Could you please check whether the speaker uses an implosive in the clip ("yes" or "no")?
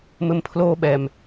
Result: yes